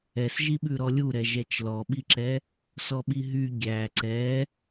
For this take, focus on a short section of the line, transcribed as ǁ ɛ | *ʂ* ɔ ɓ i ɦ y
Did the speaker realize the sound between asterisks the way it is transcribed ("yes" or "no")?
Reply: no